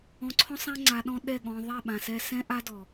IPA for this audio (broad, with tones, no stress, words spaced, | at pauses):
ɔ̃˧ǀʰɔ̃˦sˤã˦ ŋ͡ǀa˧ɗɔ̃˦ɗɛ˦˨ɠɔ̃˧ ðˤɛ˦˨ɓã˨sɛ˧ sɛ̃˦ʔa˦dɔ˨